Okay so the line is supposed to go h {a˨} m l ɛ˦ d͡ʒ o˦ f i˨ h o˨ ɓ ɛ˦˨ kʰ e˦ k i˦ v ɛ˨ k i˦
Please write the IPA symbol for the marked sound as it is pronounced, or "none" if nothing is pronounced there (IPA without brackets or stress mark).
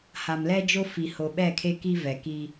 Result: a˨